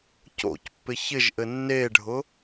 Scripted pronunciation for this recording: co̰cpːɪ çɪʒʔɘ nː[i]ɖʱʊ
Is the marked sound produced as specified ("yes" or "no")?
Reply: no